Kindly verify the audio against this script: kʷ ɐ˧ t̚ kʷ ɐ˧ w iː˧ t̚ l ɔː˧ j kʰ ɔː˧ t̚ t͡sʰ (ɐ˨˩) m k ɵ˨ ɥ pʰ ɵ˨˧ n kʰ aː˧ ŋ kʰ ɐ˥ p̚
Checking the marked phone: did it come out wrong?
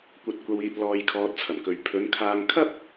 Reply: no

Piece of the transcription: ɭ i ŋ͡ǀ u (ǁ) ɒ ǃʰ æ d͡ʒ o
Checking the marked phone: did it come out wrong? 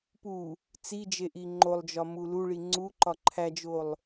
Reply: yes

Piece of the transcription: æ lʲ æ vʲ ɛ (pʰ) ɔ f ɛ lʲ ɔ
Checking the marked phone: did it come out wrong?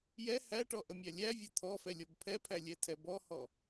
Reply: yes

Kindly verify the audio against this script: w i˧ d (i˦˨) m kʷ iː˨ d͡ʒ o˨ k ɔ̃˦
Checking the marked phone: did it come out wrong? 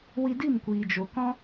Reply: no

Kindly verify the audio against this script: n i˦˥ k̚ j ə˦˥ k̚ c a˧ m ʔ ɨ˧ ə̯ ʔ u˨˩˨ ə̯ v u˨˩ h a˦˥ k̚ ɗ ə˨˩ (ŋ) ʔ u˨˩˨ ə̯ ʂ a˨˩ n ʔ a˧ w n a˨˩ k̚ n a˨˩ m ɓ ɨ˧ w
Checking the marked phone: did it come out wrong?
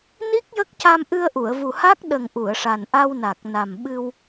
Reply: no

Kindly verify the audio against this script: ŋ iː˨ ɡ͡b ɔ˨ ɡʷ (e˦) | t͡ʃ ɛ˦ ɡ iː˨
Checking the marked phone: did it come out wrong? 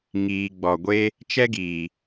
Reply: no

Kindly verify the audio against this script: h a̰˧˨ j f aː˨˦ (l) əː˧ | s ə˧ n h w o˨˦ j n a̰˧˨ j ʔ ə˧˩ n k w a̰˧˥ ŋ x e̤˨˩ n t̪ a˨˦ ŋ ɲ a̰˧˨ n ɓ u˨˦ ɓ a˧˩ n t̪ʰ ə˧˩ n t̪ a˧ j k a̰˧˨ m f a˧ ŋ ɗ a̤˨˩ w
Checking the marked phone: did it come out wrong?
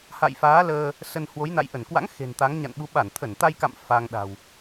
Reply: no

